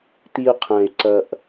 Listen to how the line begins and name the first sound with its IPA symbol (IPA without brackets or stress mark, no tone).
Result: t̪